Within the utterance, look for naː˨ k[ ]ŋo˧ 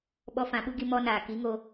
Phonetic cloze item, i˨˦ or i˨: i˨˦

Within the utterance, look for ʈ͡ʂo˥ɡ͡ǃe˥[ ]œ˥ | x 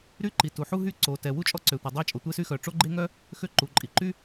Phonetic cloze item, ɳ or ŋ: ŋ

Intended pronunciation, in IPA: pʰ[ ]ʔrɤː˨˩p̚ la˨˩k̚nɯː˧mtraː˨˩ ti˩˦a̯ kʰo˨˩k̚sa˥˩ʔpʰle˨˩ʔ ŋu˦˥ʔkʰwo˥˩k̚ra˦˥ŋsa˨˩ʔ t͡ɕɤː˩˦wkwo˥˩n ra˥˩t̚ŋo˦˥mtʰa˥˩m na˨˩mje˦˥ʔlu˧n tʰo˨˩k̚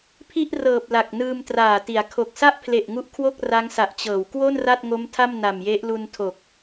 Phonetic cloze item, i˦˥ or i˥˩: i˥˩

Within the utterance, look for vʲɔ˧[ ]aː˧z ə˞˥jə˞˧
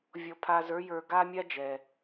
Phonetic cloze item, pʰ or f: pʰ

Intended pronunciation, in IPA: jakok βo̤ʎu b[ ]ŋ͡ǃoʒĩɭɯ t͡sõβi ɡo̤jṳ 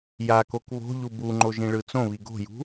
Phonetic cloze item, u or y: u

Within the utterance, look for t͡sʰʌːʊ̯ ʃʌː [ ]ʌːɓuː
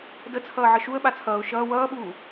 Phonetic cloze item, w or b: w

